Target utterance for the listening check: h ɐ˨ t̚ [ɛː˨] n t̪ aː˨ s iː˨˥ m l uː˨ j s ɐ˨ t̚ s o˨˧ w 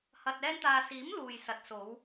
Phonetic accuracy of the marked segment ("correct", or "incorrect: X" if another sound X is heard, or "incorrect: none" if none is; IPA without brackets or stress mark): incorrect: ɛː˧